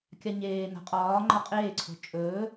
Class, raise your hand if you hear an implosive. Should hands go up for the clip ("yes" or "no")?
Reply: no